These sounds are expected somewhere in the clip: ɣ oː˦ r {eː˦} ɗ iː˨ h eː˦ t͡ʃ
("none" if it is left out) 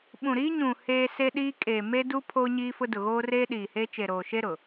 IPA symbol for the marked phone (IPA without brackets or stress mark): eː˦